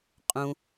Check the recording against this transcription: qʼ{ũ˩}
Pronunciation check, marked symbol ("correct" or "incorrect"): correct